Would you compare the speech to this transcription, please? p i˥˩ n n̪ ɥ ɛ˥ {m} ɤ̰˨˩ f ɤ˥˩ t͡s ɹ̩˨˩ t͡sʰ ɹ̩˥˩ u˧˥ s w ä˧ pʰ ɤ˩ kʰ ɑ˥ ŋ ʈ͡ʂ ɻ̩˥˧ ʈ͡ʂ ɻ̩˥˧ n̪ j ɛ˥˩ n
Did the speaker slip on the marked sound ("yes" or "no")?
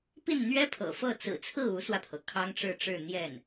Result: yes